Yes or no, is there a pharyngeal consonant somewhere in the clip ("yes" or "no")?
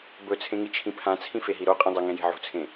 yes